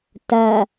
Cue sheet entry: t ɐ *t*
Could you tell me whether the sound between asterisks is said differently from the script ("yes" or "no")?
yes